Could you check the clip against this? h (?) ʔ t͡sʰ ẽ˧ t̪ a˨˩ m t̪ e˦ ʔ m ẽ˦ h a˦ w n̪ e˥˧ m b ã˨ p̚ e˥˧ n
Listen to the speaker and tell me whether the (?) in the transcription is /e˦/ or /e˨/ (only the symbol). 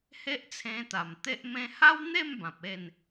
e˦